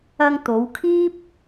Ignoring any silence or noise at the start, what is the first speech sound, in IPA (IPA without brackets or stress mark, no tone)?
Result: ɐ